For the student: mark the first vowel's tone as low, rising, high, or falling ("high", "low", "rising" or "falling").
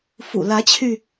low